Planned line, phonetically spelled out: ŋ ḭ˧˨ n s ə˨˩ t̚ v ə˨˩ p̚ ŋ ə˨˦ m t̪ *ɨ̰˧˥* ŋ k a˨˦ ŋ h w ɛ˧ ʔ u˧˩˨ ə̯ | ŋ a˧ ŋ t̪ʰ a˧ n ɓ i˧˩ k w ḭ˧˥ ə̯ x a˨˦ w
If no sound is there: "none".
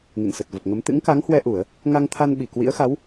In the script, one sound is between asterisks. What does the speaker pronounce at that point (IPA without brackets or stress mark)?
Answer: ɨ̰˧˥